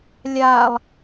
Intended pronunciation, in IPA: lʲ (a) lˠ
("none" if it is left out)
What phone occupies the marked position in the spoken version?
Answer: a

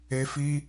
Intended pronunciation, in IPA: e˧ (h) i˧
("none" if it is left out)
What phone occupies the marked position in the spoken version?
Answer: f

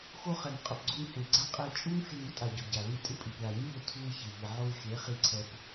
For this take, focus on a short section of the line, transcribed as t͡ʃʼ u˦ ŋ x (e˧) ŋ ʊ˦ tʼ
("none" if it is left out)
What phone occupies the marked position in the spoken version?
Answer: e˧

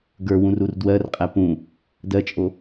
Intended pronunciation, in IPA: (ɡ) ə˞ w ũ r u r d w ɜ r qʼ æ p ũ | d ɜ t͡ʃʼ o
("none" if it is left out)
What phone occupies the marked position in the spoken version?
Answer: ɡ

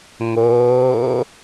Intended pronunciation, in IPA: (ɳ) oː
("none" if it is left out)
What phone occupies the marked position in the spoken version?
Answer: ŋ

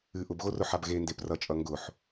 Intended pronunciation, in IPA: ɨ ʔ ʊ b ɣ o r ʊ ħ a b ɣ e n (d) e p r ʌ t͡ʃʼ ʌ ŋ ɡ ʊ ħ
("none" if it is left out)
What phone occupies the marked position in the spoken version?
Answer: d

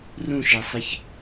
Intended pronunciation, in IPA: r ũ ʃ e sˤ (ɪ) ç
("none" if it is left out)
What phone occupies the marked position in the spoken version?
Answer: ɪ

